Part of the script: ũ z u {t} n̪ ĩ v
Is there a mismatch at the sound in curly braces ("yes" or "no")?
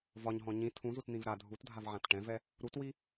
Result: no